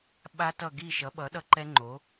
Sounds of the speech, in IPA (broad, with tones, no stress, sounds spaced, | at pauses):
ɓ a˦˥ t ʌ˦˨ ɡ i˦˨ ʃ ʌ˩˥ ɓ ʌ˩˥ ɗ ʌ˦˥ ǃ ɛ˦˥ ŋ͡ǃ o˩˥